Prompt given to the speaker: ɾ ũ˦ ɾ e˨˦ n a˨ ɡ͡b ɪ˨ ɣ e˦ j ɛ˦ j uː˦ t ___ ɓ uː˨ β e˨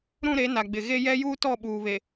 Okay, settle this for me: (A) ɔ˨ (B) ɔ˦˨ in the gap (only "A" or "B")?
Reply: B